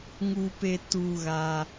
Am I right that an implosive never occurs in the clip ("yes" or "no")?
yes